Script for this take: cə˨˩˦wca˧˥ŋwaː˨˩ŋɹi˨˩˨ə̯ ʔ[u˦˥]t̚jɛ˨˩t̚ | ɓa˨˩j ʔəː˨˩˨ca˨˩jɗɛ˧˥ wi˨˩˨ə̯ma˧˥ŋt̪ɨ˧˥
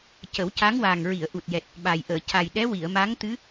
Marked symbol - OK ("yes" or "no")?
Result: no